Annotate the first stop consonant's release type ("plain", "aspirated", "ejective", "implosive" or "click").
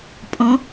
ejective